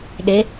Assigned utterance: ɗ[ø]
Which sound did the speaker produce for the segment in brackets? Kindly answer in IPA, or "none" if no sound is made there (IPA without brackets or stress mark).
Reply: e